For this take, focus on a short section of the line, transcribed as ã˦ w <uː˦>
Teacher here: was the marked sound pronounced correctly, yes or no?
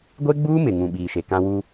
yes